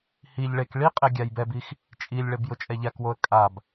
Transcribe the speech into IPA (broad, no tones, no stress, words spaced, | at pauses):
hiʎ ɭek ɭiqʼe ɡʲajbɛbix | t͡ʃʼilʲɭeb jʊt͡ʃʼɛʎakwoə̯ kʼab